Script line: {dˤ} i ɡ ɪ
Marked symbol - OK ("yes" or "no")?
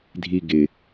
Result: no